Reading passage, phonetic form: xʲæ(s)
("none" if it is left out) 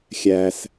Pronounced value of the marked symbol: s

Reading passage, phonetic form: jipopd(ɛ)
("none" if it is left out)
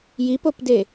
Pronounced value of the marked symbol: e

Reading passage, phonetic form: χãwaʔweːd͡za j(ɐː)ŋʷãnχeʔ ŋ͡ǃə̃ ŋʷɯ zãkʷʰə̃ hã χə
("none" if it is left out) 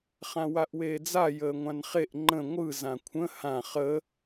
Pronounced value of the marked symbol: əː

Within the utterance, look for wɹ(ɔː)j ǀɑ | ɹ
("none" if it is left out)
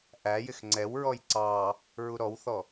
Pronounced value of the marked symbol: ɔ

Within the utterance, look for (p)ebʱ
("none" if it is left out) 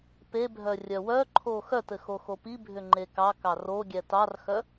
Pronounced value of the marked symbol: p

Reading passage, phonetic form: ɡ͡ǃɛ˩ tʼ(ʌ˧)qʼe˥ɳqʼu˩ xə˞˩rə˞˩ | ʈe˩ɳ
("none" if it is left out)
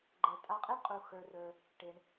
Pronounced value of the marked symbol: a˧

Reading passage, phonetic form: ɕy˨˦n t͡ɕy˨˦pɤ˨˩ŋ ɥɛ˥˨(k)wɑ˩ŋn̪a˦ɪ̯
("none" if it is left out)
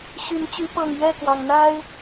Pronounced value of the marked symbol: k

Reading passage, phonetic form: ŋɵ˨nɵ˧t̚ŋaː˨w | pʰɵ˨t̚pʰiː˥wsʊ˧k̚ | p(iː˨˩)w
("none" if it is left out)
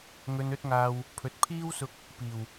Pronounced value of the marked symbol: iː˨˩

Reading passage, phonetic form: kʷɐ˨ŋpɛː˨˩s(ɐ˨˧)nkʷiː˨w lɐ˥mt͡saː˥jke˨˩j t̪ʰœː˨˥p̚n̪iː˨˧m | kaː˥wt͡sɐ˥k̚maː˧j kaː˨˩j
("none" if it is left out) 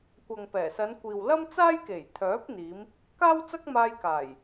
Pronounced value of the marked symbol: ɐ˨˧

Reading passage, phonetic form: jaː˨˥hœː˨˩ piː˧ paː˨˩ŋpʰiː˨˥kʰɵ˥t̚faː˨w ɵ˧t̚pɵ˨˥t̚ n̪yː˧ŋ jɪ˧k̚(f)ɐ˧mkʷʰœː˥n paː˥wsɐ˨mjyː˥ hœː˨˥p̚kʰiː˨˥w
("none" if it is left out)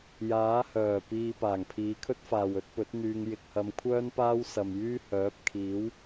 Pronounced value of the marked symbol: h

